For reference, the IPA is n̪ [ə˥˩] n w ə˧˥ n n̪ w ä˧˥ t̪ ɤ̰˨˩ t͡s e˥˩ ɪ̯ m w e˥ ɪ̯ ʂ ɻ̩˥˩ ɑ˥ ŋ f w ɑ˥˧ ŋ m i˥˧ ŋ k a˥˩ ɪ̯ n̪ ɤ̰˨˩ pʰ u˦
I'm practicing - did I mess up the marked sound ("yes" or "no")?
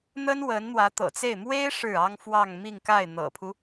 yes